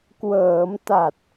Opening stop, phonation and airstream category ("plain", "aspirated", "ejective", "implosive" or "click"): plain